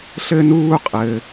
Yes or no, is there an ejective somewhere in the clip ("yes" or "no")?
yes